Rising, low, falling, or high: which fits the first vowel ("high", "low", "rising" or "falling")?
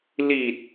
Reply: low